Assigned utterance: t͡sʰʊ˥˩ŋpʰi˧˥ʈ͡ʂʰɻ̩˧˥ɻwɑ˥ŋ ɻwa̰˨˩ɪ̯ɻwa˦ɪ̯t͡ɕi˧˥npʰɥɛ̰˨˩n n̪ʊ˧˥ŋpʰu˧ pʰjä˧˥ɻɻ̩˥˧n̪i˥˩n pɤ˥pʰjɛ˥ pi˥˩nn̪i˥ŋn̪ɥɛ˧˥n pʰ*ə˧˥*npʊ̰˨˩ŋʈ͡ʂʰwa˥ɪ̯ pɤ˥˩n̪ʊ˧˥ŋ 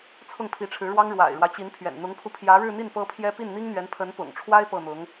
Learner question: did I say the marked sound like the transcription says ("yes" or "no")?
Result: yes